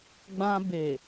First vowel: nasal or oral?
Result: nasal